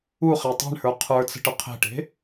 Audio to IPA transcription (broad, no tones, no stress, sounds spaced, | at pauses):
u χ e tˤ e̤ ɳ h ə˞ qʰ ə˞ t͡s ə̤ ʈ ə qʰ e̤ ʈ e̤